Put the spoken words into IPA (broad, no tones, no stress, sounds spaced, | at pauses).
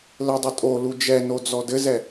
l ɘ dˤ ɘ tʼ o l u d͡ʒ ɛ n o d͡z ɔ d ɘ z ɛ